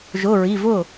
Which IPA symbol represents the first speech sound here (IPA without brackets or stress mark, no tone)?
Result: ʒ